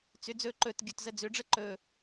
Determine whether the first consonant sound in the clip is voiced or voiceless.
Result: voiceless